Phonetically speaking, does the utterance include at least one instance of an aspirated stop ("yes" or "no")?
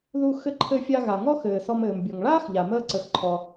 yes